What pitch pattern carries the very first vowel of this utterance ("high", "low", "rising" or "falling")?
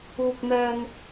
low